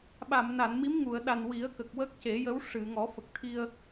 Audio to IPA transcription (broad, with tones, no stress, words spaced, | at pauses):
ɓa˨˩˨m na˨˩˨nmi˧˥mŋu˨˩˨ə̯ɗa˨˩n wi˨˩˦ə̯kə˨˩k̚ wə˦˥k̚ce˨˩˦jə˧˥w ʂɨ˨˩˨ŋɔ˨˩˦ fə˨˩k̚t̪ʰi˧ə̯